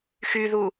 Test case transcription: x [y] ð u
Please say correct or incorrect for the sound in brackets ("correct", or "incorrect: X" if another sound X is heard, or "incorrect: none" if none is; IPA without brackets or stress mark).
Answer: correct